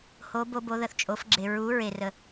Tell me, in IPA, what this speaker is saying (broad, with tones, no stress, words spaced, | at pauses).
ho˩˧bo˩˧ bo˩˧ðə˩θt͡ʃʼo˩˧fɡ͡ǁe˩ ɹu˩˧ ɹe˩rə˩